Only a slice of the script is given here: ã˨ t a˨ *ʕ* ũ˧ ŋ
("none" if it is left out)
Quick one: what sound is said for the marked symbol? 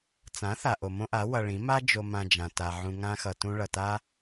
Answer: ʕ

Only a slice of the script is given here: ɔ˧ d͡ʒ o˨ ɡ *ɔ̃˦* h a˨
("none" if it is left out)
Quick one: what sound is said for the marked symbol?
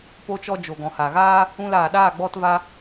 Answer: ɔ̃˨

